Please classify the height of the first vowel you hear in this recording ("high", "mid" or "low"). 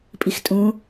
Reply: high